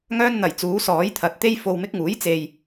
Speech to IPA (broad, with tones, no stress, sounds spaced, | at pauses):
ŋ œː˥ n n̪ ɐ˨˩ j t͡s uː˨˥ s ɔː˨˥ j t̪ʰ ɐ˨ t̚ t̪ e˥ j f o˧ w m ɪ˥ k̚ ŋ uː˨˥ j t͡s e˨ j